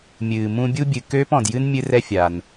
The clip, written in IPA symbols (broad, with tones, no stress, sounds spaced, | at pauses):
mʲ ɨː˨ m ũ˦ bʲ u˥ bʲ ɨ˨ k øː˥ p ɔ̃˨ d j ɨ˥ n mʲ ɨ˦ r ɛ˦ fʲ a˩ n